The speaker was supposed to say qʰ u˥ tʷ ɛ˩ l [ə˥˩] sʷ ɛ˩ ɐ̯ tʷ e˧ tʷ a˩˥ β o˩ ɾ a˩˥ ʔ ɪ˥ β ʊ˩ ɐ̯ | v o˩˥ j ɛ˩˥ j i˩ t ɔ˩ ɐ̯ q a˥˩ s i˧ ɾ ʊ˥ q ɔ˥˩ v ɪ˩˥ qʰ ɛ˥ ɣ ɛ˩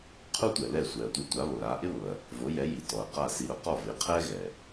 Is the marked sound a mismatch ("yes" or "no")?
yes